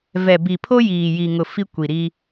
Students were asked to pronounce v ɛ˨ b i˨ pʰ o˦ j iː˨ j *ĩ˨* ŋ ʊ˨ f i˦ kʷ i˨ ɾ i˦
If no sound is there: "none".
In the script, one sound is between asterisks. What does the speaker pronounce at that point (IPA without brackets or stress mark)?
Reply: i˨